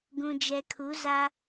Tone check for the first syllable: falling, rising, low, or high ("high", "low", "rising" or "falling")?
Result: low